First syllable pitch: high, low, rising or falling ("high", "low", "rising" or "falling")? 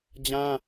high